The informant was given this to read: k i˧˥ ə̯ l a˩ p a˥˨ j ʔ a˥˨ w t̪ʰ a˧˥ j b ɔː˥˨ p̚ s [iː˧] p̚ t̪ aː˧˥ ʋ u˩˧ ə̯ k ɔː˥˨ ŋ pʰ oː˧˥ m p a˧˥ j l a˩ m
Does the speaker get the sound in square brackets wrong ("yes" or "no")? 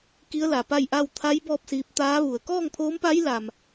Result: no